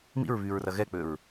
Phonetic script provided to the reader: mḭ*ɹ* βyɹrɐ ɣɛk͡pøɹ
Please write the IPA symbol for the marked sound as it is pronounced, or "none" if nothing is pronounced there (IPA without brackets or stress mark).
ɹ